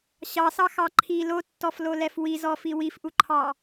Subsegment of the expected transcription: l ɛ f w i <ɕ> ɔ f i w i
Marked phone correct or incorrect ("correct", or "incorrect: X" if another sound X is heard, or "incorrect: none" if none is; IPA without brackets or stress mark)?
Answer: incorrect: z